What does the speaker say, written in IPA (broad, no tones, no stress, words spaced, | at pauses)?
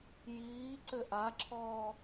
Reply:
jiː ǀɘʔaǁʰɔː